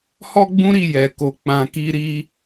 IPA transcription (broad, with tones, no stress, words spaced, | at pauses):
hɔ˦ɡ͡bũ˦ɾi˦˨ jɛ˨ko˨˦ k͡pã˧ki˦ɾi˦